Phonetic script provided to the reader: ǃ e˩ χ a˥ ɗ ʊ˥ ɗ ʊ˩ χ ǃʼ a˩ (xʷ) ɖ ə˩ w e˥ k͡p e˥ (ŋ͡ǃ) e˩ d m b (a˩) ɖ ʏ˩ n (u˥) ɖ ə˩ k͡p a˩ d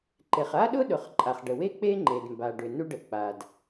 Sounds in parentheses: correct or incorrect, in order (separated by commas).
incorrect, correct, correct, correct